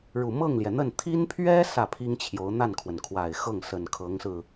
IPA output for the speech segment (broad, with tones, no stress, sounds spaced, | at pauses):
ɻ u˨˩ m ɤ˥˩ ŋ l j ɛ˩ n̪ ə˥˩ n t̪ʰ i˥ n pʰ ɥ ɛ˥ s ä˥˩ pʰ i˥ ŋ t͡ɕʰ j o˧˥ ʊ̯ n̪ a˥˩ n kʰ w ə˩ n kʰ w a˨˩ ɪ̯ x ɤ˥˩ ŋ s ə˨˩ n kʰ ɤ˧˥ ŋ s ɹ̩˧